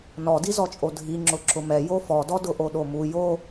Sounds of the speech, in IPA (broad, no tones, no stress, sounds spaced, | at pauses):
n ɔ d i z ɔ t͡ʃʼ o dʱ i ŋ͡ǁ ʊ ǁ ʊ m ɛ j o f ɔ d ɔ d ʊ ʔ o ɗ o m u j o